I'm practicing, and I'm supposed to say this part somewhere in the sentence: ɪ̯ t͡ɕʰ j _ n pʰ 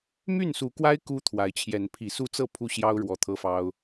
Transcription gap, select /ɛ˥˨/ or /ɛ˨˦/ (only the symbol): ɛ˨˦